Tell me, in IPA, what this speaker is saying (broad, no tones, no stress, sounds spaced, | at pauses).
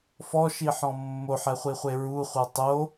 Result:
f ɔ ʃ i ħ ɔ̃ mː o ħ ɛ χʷ i χʷ e ɹ u χʷ ɤ tˤ o